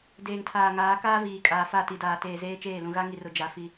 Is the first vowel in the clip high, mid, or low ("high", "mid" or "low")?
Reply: mid